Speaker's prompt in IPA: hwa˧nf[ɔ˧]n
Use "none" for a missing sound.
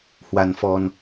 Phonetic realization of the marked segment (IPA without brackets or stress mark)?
ɔ˧